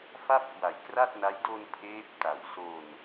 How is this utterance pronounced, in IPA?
f a˥˩ p̚ k w a˨˩ j k r a˥˩ t̚ n a˦˥ j d o˧ n pʰ eː˦˥ p̚ t a˨˩ w s o˧ n

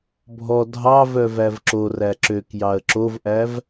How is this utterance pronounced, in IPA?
bʱ ɔ dʱ ɑ v œ v æ v ǁ o r æ ǁ ø k j ɑ ə̯ ǁ o v ʔ æ v

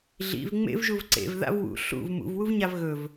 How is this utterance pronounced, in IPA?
ɮ ḭ v ŋ͡m ḛ v ʒ u v ǀ ḛ v ð a̰ v w ṵ ɬ ṵ v m ṵ v w u v ɲ a v ɣ ɵ v

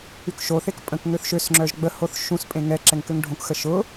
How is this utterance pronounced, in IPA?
y k ʃ o θ e k pʼ ə̃ k ŋ ø θ ʃ ø s ŋ͡ǁ œ ʒ ɡ͡b ə h o θ ʃ ũ s pʼ ẽ ŋ ɛ ǁ ɛ ŋ k ø ŋ ɖʱ õ k x ə ʃ ʊ

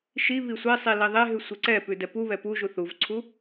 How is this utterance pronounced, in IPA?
ʃ i β i sʷ e sˤ i l i ðˤ e ɦ ʉ sʷ e ǀ ɛ p ʉ d ɛ p u β ɛ p u ʒ u θ u v ǀʰ u

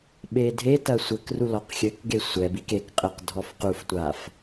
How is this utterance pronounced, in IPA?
ɓ e dʱ e t ɐ sʷ ɘ k r u l ɔ q xʲ ɘ k ɡ e sʷ ɛ b i k e k qʼ ɘ q dʱ ɔ f q u f tʷ a f

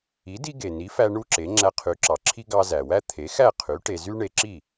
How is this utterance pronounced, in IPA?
i˩˥ d i˥ ɡ e˩ n i˩˥ f æ˧ ɳ u˥ ǁ e˩˥ ŋ͡ǁ æ˧ qʰ y˩˥ ǁ ɑ˩ ǁʰ i˥ ɡ ɑ˧ z æ˩ w æ˥ t̪ʰ e˩˥ x æ˥˩ qʰ y˩˥ ʈ e˧ z y˥ ɳ e˧ ǁ i˥˩

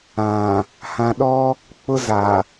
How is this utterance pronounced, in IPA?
ã˨ | h ã˨ ɗ ɔ˦ | k͡p ʊ˦ z a˨

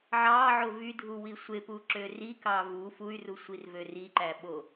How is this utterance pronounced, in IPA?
ʕ ɑ ʕ o v y dʱ u w i sʷ e p u ǁ ø r i k ɑ v u f u y̯ r u sʷ i r v ø r i ǃ æ ɓ o

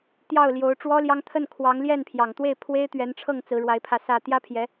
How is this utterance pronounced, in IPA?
t̪ j ɑ˥˩ ʊ̯ l j o˧˥ ʊ̯ ʈ͡ʂ w ɔ˥ l j ɑ˥ ŋ t̪ʰ ə˥˩ n kʰ w ɑ˧˥ ŋ l j ɛ˥˩ n pʰ j ɑ˨˩ ŋ t̪ w e˥˩ ɪ̯ pʰ w e˥ ɪ̯ t̪ ɥ ɛ˧˥ n ʈ͡ʂʰ ɤ˥˩ ŋ t͡s ɹ̩˧˥ ɻ w a˧˥ ɪ̯ pʰ ä˧ s ä˥˩ t̪ j ä˥ pʰ j ɛ˧˥

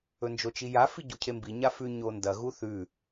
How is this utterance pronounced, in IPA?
ɵ n d͡ʒ o t͡ʃ i j a f i ɟ u cʰ e m b i ɲ a f ʉ ɲ o n d ɐ ɣ u θ ʉ

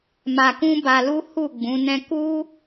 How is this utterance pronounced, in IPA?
m a˧ k ũ˦ b a˧ l u˦ h u˦˨ ɡ͡b ũ˨˦ n ɛ̃˦ k u˦

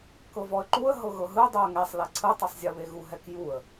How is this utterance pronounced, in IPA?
k ɤ v ɔ ə̯ ǃ u ə̯ ɦ ɤ ɣ ɤ ɦ ɯ dˤ u ə̯ ŋ ɛ sˤ l e ǀʰ ɯ tˤ ɯ sˤ zʲ ɤ β e ɣ u ɦ ɛ k j u ə̯

